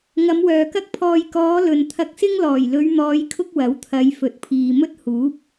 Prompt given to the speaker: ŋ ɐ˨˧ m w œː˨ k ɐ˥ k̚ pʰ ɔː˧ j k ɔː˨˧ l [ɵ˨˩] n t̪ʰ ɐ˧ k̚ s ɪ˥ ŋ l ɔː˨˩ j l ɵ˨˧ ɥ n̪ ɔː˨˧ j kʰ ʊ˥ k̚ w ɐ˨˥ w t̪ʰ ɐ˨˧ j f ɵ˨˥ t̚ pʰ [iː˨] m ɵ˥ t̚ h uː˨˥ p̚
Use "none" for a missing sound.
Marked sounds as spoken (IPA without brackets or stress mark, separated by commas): ɵ˨, iː˨